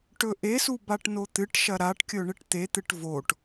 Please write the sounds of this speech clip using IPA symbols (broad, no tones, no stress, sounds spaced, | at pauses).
ʈ ɵ ʔ e s u b a ʈ n o t̪ ɨ ʈ ʃ ɐ ɾ a ʈ kʲ ɵ ɳ ɨ ʈ t̪ e t̪ ɨ ʈ v o ʈ